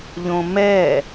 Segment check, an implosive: absent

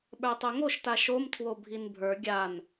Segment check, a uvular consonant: absent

